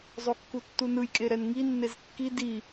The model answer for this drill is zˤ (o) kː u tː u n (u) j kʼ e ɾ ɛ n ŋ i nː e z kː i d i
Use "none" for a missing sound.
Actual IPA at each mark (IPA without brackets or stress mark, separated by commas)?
o, ɯ